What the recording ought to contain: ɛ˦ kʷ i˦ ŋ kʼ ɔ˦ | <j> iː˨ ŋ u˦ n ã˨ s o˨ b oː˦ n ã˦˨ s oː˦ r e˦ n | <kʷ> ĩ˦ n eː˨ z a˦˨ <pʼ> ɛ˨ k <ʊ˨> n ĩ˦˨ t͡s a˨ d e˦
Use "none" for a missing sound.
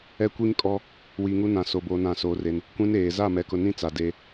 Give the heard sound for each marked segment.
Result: w, kʷ, m, ʊ˨

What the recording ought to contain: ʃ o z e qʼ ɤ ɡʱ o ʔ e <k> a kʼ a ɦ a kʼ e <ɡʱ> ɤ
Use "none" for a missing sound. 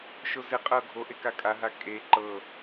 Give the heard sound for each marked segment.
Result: k, ǃ

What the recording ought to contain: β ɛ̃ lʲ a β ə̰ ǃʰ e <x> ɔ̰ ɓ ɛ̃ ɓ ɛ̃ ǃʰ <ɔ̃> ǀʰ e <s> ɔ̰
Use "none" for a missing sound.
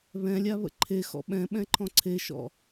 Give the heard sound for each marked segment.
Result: x, ɔ̃, ʃ

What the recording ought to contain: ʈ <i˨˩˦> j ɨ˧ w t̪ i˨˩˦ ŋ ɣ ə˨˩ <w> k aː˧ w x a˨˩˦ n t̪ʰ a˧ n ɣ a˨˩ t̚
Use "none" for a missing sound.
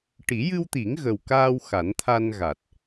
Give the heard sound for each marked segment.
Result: i˨˩˦, w

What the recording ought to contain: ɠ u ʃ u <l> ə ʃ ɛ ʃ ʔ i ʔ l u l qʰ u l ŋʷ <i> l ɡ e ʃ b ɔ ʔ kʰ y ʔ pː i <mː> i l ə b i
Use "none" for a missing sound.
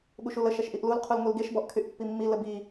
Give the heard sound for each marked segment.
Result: l, i, mː

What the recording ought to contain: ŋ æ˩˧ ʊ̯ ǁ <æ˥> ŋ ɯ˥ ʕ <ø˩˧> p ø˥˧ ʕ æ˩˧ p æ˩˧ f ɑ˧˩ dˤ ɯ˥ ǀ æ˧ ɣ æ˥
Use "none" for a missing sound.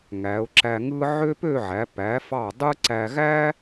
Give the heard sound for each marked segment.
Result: æ˧, ø˥

